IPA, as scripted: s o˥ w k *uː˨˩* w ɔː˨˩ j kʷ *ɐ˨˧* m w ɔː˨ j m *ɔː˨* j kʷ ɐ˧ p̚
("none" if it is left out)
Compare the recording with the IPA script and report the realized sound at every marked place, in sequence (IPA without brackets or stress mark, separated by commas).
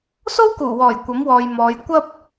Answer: uː˨˩, ɐ˨˥, ɔː˨˧